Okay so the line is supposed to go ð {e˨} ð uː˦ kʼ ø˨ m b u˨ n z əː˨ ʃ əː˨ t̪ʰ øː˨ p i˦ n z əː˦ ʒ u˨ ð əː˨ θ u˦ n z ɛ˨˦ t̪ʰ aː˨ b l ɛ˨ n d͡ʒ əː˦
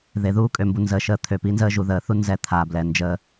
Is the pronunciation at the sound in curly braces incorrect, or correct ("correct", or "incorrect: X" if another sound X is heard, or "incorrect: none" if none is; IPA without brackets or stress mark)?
correct